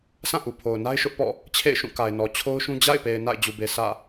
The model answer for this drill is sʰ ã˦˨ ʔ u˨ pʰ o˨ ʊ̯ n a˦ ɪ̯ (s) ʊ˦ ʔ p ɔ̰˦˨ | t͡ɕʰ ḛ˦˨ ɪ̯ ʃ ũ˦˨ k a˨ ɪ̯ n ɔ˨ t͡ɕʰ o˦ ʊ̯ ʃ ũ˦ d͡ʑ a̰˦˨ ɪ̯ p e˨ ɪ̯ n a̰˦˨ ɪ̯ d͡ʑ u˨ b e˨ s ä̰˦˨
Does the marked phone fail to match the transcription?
yes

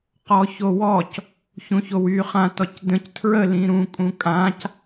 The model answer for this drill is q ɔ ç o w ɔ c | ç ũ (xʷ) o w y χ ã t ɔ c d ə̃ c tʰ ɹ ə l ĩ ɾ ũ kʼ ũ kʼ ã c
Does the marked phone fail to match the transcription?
yes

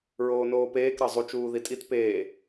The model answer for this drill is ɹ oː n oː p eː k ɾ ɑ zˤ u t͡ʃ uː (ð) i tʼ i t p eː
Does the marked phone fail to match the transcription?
no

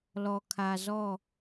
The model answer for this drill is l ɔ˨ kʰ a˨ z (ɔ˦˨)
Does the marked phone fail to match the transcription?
no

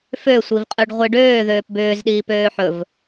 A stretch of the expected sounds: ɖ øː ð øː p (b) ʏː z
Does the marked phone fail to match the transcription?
no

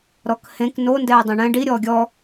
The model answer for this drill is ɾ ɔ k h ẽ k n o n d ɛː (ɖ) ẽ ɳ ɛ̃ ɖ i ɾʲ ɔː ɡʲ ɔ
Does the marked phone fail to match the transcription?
yes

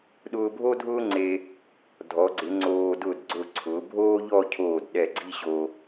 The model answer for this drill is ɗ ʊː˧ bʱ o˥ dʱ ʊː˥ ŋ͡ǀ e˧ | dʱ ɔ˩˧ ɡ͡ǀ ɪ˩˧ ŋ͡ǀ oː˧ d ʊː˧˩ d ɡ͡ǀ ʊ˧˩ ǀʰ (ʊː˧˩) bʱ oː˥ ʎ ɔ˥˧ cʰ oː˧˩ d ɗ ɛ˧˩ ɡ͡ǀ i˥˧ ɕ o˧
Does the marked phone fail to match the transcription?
yes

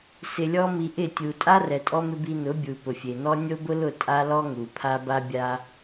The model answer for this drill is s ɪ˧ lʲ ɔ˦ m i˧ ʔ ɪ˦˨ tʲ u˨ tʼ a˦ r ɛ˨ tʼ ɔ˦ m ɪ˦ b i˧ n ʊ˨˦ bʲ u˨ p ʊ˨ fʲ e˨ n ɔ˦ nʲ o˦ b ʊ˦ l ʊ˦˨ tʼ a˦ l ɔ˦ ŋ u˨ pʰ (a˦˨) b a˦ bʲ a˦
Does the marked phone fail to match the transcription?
yes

